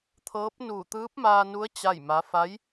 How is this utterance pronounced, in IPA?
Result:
t̪ʰ ɤː˧˥ p̚ n uː˧˩ t̪ ɯː˧˥ p̚ m aː˧ n u˧˥ ə̯ t͡ɕ a˥˨ j m a˧˥ f a˧˥ j

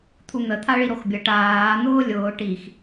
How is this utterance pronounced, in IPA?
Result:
t̪ʰ u n̪ ə t̪ʰ a ɭ i ɾ o x bʲ ə ʈ aː n̪ ʊː lʲ ʊː ʈ i x

